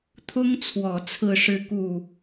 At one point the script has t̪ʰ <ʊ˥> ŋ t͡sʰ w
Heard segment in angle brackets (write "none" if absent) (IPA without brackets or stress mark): ʊ˥